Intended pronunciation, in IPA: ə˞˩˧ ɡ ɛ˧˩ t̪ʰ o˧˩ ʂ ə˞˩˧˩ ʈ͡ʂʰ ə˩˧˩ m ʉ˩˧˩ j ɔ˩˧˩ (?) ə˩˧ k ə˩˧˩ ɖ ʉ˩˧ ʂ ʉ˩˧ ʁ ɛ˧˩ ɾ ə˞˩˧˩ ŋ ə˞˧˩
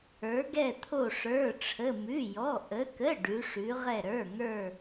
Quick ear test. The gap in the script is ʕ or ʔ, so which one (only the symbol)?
ʔ